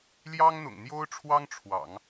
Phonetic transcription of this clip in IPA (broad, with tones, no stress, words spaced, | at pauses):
ljɑ˥ŋn̪ʊ̰˨˩ŋn̪jo˥ʊ̯ʈ͡ʂʰwɑ˥ŋ ʈ͡ʂʰwɑ̰˨˩˦ŋ